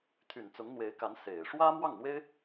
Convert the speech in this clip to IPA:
t̪ʰ y˨˩ n t͡s ʊ˧˥ ŋ n̪ w e˧˥ ɪ̯ k a˧˥ n s e˨˩ ɪ̯ ʂ w ä˥ m w ɑ˥˩ ŋ n̪ w e˥ ɪ̯

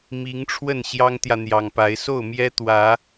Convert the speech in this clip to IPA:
m i˨˦ ŋ ʈ͡ʂʰ w ə˥˨ n ɕ j ɑ˦ ŋ t̪ j ä˨ n̪ j ɑ˨˩ ŋ p a˨˦ ɪ̯ s o˥˨ ʊ̯ m j ɛ˦ t̪ w ä˨˦

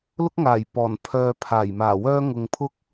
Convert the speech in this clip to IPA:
l ʊ˥ k̚ ŋ aː˨˩ j p ɔː˨˩ n pʰ œː˧ pʰ aː˨˩ j m aː˨˩ w œː˥ ŋ ʊ˨ ŋ pʰ ʊ˥ k̚

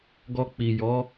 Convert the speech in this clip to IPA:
ɡ ɔ˧ k͡p i˨ j ɔ˨˦

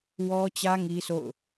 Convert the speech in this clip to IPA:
w ɔ˦ t͡ɕ ä˦ ŋ i˦ sʰ o̰˦˨ ʊ̯

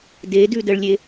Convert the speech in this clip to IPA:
d e d ʉ d ə ɭ lʲ e

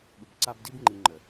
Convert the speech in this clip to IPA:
ɠ u˨ b ǀ a˦ b d i˦ b ŋ͡ǃ i˨ ŋ͡ǃ ə˨

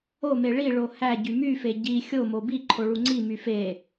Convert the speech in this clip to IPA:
o m e ɭ i ɭ o h æ ɟ y m y f e ɟ i xʲ o m o b i ǃʰ o ɭ u ŋ͡ǀ i m y f e

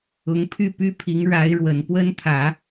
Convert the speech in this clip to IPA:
ʊ˧˥ ŋ pʰ y˥˩ p y˥ pʰ i˧˥ ŋ ɻ a˧˥ ɪ̯ ɻ w ə˨˩ n p w ə˥ n t̪ʰ ä˨˩˦

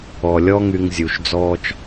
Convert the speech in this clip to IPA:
ɔ˩ lʲ ɔ˦ ŋ y˨ ŋ zʲ u˩ ʃ d͡z ɔː˥ t͡ʃ

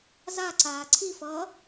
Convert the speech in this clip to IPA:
z a ǀ aː ǀʰ i f ʌː

